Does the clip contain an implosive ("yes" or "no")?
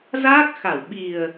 yes